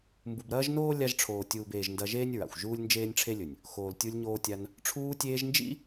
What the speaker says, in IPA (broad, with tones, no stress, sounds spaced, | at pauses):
m b u˨ b ɾ ɐː˦ ʒ n oː˦ lʲ a˧ ʒ ʈ͡ʂʰ oː˨ tʲ uː˨ b eː˨ ʒ n d ɐ˧ ʒ eː˦ nʲ ɹ a̰˨ xʷ ʒ uː˦ lʲ n d͡ʒ eː˦ nʲ ʈ͡ʂʰ e˦ lʲ ɵ˨ nʲ | x oː˨ l tʲ u˧ lʲ ɲ oː˧ tʲ a˧ n | ʈ͡ʂʰ uː˧ tʲ eː˧ ʒ n d͡ʒ ḭ˦